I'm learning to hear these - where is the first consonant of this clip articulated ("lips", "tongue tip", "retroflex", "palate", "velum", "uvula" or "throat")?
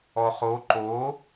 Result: uvula